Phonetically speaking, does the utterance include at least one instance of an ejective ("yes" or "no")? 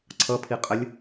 yes